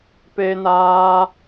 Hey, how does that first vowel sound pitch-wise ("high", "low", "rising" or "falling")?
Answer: high